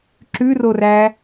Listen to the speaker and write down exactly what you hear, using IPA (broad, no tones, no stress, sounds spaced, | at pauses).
ǁ ʉ r o r æ